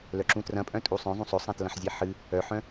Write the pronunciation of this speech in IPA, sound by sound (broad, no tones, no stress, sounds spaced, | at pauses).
l œ ǁ ũ t r ɐ̃ pʼ œ̃ tʼ u sˤ œ̃ zˤ ũ sˤ ɵ sˤ ã t l ɐ̃ ħ zʲ e ħ ɨ | œ ħ œ̃